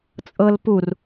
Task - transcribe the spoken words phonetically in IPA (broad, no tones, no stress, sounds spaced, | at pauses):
t͡sʼ ɤ l p u r